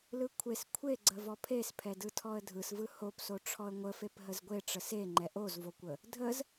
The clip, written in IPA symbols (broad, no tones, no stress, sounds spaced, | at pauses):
l ɯ kʷʰ e s kʷʰ e ɡ͡ǀ ə v ɔ pʰ e s pʰ ɛ d ɯ tʰ ɔ ə̯ dʱ ɯ s v ɯ h o p s o ʈ͡ʂʰ ɔ ə̯ ŋʷ ə f e p ɦ ə z ɡʷ e ʈ͡ʂ ə s e ŋ͡ǃ ɛ ʔ o z v o kʷ ə | dʱ ə z